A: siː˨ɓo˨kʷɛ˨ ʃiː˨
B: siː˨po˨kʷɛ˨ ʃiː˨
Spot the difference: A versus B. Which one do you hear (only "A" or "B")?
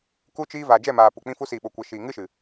A